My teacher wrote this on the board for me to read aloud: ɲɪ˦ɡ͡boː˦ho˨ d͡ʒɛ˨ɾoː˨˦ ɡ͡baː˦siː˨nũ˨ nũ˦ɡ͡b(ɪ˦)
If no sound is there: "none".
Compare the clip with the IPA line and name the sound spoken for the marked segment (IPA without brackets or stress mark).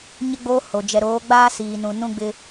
ɪ˦